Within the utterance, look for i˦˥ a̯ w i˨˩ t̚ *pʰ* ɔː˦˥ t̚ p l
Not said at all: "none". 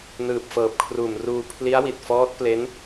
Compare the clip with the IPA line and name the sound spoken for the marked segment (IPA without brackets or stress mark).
f